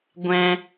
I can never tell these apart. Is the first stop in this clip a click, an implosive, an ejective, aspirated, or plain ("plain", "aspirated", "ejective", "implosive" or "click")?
plain